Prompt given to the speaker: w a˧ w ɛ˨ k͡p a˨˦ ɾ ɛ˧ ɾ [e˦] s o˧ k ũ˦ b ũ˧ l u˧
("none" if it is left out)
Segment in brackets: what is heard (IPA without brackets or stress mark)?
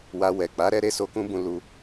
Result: e˦